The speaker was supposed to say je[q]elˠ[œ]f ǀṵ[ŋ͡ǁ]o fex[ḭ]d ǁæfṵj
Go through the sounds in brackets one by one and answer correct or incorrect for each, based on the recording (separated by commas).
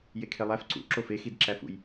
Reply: incorrect, incorrect, incorrect, incorrect